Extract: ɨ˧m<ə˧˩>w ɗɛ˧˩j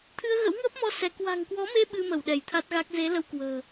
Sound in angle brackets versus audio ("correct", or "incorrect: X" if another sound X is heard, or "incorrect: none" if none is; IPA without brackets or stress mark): correct